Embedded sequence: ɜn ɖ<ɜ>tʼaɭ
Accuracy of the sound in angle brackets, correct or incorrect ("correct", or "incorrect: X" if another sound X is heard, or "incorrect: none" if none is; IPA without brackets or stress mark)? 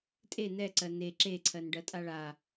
correct